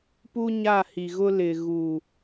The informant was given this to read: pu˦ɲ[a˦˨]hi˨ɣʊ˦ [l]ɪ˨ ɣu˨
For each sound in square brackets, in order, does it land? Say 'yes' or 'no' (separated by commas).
yes, yes